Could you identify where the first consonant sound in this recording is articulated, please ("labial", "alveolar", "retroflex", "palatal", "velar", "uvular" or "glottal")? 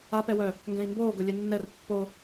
labial